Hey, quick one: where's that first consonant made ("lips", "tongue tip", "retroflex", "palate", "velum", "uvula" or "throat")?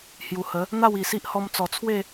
throat